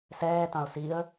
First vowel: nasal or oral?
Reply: oral